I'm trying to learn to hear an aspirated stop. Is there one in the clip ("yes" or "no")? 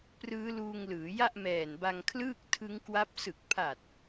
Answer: yes